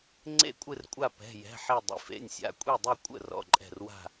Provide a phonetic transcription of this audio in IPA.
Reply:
ŋ͡ǀ ḛ˥˨ kʷʼ ɨ˥˨ r kʷʼ a˥˨ p ɛ̤˩˧˩ j ɛ̤˩˧˩ ħ i˥˨ dˤ ḭ˩˧˩ f ḛ˩˧˩ nʲ sʲ a̰˩˧˩ kʷʼ i˥˨ dˤ ɨ˥˨ kʷʼ ə̰˥˨ r ɔ̰˩˧˩ ǃʼ ɛ̤˥˨ r w a̤˥˨

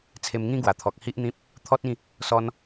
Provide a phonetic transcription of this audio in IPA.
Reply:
t͡sʰ e˧ m ŋ ĩ˦ ɡ w a˨˩ t̪ʰ ɔ˨ k̚ h i˦ ʔ n̪ ĩ˦ p̚ | t̪ʰ ɔ˦ t̚ ĩ˥˧ | s ɔ˧ n

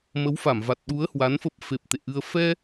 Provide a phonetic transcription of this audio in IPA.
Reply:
m ə˨˦ w f a˧˩ m v a˨˩ t̚ ɗ u˨˦ ə̯ h w a˨˦ n f ə˦˥ p̚ f e˨˩ p̚ t̪ ḛ˧˨ ʔ ɨ˧ ə̯ f ɛ˧

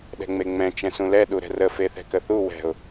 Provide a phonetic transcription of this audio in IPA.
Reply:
ɗ ɛ̤ ŋ͡m e ŋ͡m ɛ̃ t͡ʃ ɛ̃ s ũ l ɛ ɗ u ɾ ɛ̤ r ə f e θ ɛ̤ k ə θ u w ɛ̤ ʊ̯

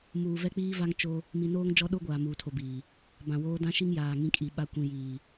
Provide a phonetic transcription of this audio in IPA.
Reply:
m uː˨ v ɛ˦ k͡p iː˦ v a˦ ŋ t͡ʃ o˦ | m i˨ n oː˦ ŋ d͡ʒ ɔ˦ ɗ o˦ ɡʷ aː˨ m uː˨ tʰ o˨ b iː˨ | b ã˨ w oː˦ d ã˦ ʃ i˦ ŋ j aː˨ ŋ ĩ˦ kʼ i˨ ɓ a˨ kʷ ĩ˨ j iː˨

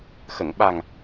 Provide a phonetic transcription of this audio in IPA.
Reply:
x ə˨˩˨ ŋ ɓ a˨˩ ŋ

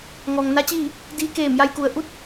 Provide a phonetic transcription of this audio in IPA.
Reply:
ŋ ɔː˩ ŋ n a˧˥ t͡ɕ iː˥˨ | d iː˧ k eː˧˩ m j a˧ j k u˩ ə̯ ʔ u˥˨ t̚

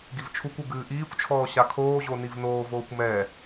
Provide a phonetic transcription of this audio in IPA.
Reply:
ɡ i v t͡ʃʰ u kʷ u ɡ ɨː ʔ iː kʷ t͡ʃʰ ɔː ɕ a kʰ oː ʑ o n i v n oː v oː kʷ m ɛ

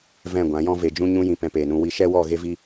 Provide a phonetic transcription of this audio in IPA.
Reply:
v ɛ̃˦˨ ɡʷ ã˨˦ j ɔ̃˦ v e˨ d͡ʒ ũ˧ ɲ ũ˧ j ĩ˨ p ɛ̃˧ p eː˨ n ũ˧ w i˧ ʃ ɛ˦ w ɔ˦˨ ɣ e˦ v i˦

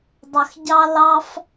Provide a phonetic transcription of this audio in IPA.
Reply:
dˤ ə˨ x ɟ ɑ˦ l ɑ˦ f

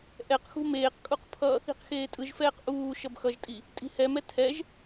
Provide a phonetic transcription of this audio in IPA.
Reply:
ʔ ɛ q x ṳ m eː q kʼ u q pʰ ʌ | i̤ q x eː tʼ ɯ ʒ f ɛː q ʔ uː ʃ ʌ b x ʌ ʒ tʼ i | tʼ i̤ h ɛ m ɛ tʰ ɛ ʒ

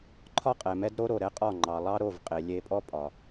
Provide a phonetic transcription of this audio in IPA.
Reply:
ǃʰ ɒ˦ qʼ ɛ˨ m ɛ˦ d ɾ o˦ ɾ o˨ ɾ ɛ˦ qʼ ɒ˦˨ ŋ͡ǃ ɑ˨ lˠ ɑ˦ ɾ o˦˨ v qʼ e˨ lʲ e˦ pʼ ɔ˦ pʼ ɒ˨

